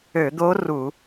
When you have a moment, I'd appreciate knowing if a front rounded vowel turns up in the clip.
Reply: yes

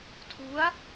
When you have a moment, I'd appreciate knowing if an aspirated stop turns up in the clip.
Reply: yes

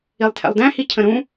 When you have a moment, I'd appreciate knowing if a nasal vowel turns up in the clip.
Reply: yes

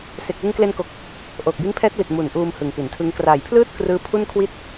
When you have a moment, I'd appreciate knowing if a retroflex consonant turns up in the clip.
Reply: no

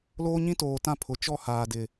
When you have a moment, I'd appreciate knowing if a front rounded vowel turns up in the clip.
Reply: no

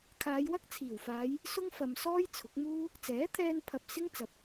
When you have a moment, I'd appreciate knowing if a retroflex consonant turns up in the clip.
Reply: no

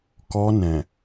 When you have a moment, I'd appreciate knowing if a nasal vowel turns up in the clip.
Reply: yes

